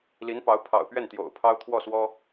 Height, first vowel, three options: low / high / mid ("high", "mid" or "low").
high